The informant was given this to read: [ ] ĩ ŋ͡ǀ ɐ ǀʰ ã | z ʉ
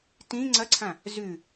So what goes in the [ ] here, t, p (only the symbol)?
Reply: t